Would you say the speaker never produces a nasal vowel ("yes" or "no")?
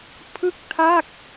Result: yes